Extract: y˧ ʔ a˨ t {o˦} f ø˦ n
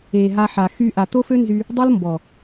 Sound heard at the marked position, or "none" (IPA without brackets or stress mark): o˦